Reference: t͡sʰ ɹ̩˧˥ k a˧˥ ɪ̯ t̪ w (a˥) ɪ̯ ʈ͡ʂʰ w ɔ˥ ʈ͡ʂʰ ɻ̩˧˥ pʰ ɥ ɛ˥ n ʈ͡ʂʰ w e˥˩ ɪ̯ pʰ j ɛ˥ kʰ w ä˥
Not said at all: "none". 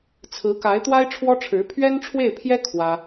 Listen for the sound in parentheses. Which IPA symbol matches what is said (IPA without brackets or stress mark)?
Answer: a˥